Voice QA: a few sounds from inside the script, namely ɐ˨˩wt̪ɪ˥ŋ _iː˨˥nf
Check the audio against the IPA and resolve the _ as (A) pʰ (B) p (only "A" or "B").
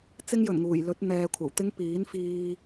B